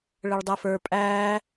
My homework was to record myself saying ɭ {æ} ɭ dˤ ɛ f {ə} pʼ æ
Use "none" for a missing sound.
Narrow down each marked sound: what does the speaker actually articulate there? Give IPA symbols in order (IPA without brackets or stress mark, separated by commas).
ə, ə˞